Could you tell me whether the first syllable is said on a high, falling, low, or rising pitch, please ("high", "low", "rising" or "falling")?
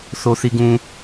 low